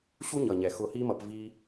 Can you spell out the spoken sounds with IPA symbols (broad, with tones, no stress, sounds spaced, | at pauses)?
ɕ u˦ ɲ ʌ˨ ɲ ɛ˨ x ʊ˧ h i˦ m ʌ˧ p v i˧